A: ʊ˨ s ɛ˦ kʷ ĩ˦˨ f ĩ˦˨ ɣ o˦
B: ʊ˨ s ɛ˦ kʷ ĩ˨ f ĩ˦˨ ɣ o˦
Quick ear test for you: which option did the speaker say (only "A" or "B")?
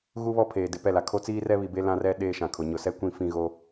A